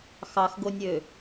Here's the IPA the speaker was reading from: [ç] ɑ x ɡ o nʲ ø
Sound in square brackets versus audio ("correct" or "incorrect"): incorrect